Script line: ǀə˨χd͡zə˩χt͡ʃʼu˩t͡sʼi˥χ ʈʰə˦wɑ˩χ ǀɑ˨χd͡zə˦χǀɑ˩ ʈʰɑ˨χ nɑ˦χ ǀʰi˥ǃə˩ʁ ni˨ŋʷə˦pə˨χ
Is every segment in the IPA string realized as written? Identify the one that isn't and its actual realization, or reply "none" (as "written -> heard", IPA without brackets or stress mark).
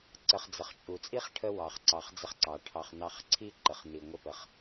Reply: ʁ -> χ